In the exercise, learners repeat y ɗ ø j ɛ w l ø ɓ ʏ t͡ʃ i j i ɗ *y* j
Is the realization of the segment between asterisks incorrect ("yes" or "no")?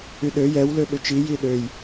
yes